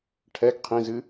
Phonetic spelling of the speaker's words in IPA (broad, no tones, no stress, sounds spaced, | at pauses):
ʈʰ ɛ ɡ qʰ ĩ z ɨ